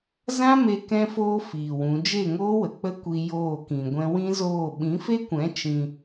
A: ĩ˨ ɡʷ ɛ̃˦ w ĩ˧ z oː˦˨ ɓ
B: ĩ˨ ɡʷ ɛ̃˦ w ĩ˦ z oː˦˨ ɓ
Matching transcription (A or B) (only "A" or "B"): B